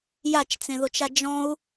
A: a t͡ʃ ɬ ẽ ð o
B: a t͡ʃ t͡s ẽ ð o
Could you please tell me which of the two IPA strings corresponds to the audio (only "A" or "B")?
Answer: B